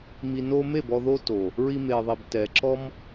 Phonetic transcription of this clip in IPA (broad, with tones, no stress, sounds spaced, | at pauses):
m i˨ n o˧ m e˦˨ b ɔ˧ ð o˦ t o˨ | ɹ i˧ m e˨ ðˤ i˨ b t ɛ˨ ǁ ɔ˦ m